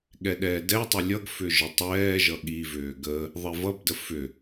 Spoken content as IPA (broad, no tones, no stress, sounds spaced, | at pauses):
ɠ ɛ ɗ ɛː d ɛ tˤ ʏ lʲ ʌ ɡ f ʏ ʒ ə tˤ ɛː ʒ ʌ ɠ i v ʏː ɡ ə | ðˤ e v ʌ b d ə f ʏ